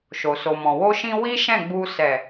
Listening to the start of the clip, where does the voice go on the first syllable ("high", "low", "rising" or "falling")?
low